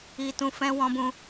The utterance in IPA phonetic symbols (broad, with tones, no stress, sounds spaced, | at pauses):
i˨ t ũ˨ f ɛ̃˧ w ɔ̃˧ b ũ˧